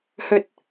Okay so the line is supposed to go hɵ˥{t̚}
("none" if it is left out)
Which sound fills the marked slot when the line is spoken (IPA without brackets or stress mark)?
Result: t̚